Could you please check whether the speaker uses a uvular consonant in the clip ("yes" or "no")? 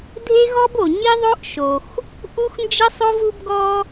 no